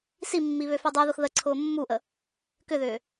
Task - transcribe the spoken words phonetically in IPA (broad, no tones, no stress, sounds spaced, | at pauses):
s i mː i β ø f ø dˤ u ð ʊ x ð ə ǀʰ ʊː mː u ʔ ə | k ʏ ð ʏː